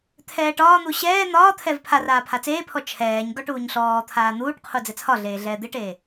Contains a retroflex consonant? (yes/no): yes